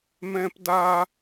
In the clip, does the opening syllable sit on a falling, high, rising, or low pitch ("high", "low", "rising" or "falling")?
high